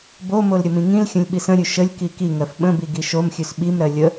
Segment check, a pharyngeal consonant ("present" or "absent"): absent